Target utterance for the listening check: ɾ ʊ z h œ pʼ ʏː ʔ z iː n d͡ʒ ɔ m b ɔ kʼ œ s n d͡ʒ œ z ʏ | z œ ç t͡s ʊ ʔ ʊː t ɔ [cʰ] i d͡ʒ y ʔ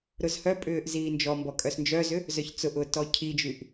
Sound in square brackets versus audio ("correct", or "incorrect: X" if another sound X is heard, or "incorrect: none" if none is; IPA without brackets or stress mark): correct